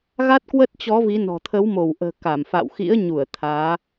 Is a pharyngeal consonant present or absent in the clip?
absent